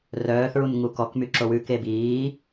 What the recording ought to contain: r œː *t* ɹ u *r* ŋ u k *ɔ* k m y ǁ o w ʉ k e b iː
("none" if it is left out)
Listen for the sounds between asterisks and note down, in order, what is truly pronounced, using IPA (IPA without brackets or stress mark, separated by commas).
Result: θ, n, ɔ